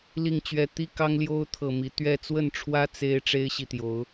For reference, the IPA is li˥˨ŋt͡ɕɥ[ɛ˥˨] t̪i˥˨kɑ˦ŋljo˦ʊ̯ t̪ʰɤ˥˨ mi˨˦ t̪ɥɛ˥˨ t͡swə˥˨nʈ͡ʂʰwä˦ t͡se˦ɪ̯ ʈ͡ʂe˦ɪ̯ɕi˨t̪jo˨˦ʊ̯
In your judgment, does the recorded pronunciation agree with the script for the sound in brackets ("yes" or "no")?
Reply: yes